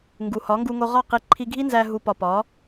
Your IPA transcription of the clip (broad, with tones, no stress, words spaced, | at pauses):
ŋɡu˨hɒ˨˦ŋɡu˧ŋo˧ ʁɒ˦˨qi˧ ǃʰi˧ɡʱi˦nzæ˧ ɦu˨pɒ˨ pɒ˨˦